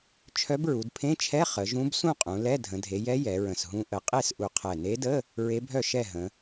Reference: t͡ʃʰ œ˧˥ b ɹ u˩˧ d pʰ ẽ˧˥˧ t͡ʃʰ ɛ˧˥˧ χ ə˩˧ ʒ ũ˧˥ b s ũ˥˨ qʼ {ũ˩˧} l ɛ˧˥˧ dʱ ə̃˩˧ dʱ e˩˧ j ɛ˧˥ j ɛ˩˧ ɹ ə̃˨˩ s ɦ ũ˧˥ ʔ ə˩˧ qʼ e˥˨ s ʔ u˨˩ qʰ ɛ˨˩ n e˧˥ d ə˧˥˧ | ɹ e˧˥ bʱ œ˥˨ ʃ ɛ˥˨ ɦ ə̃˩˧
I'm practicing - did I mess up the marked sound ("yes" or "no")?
no